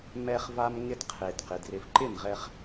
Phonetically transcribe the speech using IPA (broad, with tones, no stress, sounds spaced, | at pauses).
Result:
m ɛ˧ χ v a˧ m ŋ ɪ˧ d qʰ e˨ d q ɪ˨ d r ɪ˨ f ǃ ɪ˦˨ m ʁ ɛ˧ χ